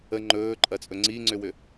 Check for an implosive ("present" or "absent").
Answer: absent